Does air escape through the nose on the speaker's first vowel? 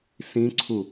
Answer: yes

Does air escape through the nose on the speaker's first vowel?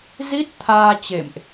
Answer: no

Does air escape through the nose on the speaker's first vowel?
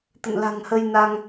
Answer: no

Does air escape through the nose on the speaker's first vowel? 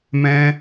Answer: yes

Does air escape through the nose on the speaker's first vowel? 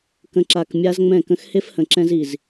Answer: yes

